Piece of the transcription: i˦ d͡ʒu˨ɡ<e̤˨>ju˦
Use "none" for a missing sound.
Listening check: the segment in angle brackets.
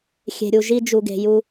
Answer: e̤˨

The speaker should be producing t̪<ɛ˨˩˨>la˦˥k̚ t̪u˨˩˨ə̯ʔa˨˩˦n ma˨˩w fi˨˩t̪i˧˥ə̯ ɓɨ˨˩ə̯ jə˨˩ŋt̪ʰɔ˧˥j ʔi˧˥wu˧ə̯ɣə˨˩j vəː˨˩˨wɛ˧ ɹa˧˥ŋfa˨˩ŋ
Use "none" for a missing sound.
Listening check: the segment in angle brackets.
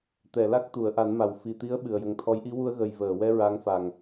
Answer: ɛ˨˩˨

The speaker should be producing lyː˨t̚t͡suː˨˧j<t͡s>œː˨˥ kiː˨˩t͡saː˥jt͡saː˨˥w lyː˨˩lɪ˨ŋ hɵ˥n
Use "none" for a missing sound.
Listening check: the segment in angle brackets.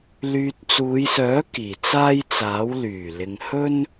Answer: s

